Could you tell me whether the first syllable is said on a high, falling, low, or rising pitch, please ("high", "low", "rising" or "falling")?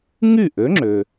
falling